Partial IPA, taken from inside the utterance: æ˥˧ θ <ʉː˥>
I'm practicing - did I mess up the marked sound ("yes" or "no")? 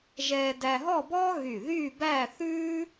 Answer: no